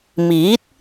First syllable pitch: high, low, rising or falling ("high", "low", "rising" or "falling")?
rising